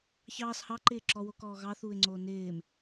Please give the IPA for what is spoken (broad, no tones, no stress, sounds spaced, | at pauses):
ç ɑː s h ɑ ǃ ɪː ǁ ɔ w o k ɔː ɣ ɑ θ uː ɪ̯ ŋ͡ǀ oː n ɪː m